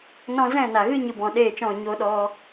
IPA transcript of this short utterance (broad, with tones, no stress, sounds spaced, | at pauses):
n ɔ̃˦ z ɛ̃˦˨ n a˨ ɣ ɨ˦ ɲ ɨ˧ b ɔ̃˨ ɗ eː˦˨ t͡ʃ ɔ̃˦˨ ɲ o˧ ɗ ɔ˧